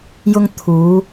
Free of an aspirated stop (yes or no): no